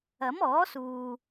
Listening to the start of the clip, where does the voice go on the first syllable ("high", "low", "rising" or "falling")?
rising